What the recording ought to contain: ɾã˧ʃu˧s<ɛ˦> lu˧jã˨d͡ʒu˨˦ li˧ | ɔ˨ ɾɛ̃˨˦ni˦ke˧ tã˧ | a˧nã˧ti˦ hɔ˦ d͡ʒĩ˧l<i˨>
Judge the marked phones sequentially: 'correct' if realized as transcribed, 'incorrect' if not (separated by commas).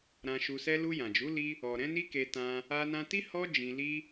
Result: correct, incorrect